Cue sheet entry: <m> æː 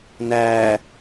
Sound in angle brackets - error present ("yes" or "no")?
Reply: yes